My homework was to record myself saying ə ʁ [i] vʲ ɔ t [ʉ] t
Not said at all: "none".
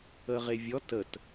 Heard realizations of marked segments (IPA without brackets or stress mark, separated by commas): e, ə